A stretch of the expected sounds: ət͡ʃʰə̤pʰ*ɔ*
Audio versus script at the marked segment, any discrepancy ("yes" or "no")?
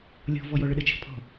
yes